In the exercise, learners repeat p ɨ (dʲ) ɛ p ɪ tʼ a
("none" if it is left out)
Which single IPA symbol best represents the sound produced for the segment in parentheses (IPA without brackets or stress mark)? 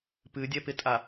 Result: dʲ